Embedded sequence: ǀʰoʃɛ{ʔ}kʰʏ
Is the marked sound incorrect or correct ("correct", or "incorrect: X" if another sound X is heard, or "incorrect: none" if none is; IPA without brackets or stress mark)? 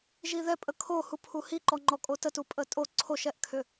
correct